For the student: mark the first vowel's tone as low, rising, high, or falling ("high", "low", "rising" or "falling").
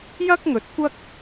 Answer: high